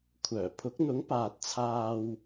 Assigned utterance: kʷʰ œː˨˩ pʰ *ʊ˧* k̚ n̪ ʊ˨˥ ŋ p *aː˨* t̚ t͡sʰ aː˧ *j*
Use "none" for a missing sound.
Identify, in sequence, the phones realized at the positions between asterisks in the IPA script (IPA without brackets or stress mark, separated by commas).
ʊ˨˥, aː˨, w